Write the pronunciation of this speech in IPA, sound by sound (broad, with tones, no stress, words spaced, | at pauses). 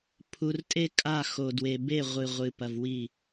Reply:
pʰu˨r tʼe˦kʼa˦˨xo˨ dwe˨be˦˨ ʁʷɨ˨ʁʷɨ˨pɐ˨v wi˦˨